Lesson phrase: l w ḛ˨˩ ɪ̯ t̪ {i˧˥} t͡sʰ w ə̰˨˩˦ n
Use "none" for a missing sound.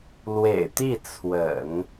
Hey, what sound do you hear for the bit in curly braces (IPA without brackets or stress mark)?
i˥˩